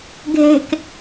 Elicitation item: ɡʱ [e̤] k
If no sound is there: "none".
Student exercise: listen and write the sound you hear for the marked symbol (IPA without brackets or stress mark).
e̤